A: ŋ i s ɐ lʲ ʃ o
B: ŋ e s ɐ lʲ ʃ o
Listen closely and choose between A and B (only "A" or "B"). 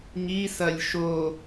A